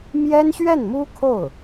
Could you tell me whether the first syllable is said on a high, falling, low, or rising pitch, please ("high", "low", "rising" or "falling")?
high